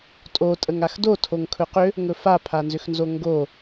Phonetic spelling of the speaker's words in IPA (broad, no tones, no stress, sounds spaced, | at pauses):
tʼ o tʼ ə ŋ a x d o tʰ o ŋ kʰ ɵ q ʏ | ŋ ɵ f a pʰ a n z ʏ x n z o ŋ ɡ o